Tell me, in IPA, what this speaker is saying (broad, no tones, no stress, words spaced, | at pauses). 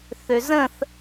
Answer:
θøzə̃θ